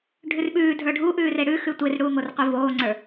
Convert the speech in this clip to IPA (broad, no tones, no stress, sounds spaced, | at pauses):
ɖʱ ʉ r ɓ ʉː dʱ ə˞ ɖʱ u ʔ ʉː r e ɽ ʉ x ʉ tʷ e r ɽ uː ŋ o r qʷ i v oː ŋ͡ǀ ə˞